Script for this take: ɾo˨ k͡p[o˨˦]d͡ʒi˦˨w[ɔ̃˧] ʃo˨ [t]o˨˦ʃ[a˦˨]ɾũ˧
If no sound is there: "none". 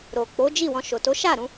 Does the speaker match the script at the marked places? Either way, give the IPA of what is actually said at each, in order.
o˨˦, ɔ̃˧, t, a˦˨

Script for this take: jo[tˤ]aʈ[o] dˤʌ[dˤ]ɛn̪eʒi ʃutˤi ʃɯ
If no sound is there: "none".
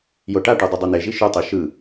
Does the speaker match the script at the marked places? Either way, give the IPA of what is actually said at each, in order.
ʈ, o, dˤ

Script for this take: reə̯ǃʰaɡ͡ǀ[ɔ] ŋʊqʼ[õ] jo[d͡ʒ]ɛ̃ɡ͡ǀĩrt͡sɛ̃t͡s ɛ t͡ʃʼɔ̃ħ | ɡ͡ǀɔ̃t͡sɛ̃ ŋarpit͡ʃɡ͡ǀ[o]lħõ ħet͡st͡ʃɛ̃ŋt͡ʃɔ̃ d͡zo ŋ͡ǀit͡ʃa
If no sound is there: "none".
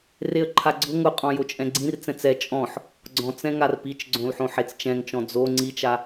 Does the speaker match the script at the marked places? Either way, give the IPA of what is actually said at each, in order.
ʊ, ɔ̃, t͡ʃʼ, õ

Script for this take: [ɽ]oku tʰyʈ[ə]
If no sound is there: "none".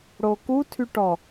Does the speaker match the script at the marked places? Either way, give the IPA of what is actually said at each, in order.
ɽ, ɔ

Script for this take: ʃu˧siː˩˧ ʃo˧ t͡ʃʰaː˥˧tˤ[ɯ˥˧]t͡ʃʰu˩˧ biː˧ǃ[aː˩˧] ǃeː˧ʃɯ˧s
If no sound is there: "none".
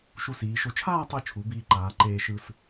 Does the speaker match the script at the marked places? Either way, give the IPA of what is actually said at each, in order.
ɯ˧, aː˩˧

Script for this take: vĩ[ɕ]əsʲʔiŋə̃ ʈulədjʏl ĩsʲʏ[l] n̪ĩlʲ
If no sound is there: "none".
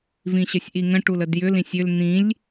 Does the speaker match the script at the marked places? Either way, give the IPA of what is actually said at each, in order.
ɕ, l

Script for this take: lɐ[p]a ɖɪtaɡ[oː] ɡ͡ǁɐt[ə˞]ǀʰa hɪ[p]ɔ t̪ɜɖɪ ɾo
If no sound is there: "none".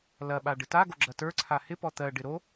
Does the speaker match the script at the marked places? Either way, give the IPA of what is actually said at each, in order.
ɓ, o, ə˞, p

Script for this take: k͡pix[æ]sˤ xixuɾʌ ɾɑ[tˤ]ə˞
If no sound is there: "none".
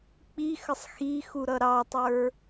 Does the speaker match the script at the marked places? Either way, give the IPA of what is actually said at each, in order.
ə, tˤ

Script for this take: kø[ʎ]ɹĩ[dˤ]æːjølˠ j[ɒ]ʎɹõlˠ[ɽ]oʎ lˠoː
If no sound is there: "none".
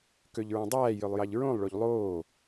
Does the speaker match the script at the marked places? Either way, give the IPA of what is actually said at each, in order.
ʎ, dˤ, ɑ, ɭ

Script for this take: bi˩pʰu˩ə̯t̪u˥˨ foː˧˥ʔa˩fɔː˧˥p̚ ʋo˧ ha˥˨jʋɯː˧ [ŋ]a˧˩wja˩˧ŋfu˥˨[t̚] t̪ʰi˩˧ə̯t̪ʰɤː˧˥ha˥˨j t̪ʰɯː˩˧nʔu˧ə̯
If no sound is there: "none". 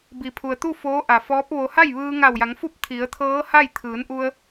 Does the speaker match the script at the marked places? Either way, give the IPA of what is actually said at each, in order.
ŋ, p̚

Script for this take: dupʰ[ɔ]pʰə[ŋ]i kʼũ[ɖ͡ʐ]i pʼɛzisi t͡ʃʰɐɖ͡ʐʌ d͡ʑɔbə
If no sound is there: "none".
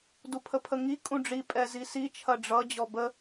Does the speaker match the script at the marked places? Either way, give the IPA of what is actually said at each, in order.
ə, ŋ, ɖ͡ʐ

